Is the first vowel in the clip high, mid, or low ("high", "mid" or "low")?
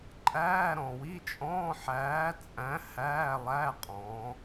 low